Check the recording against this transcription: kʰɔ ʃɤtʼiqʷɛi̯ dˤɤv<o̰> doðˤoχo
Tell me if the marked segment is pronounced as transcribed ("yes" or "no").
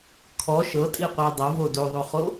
no